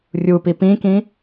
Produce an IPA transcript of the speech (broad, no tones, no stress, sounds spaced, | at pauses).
rʲ u p i p ĩ k ĩ